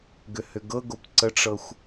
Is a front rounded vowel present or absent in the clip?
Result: present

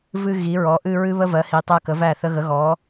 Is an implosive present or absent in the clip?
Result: absent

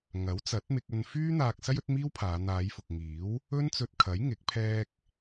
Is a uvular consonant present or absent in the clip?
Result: absent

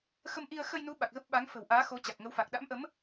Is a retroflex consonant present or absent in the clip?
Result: absent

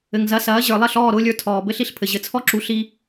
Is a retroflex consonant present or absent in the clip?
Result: absent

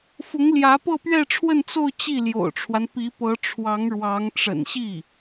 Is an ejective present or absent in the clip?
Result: absent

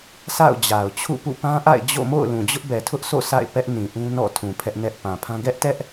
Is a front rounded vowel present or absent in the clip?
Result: absent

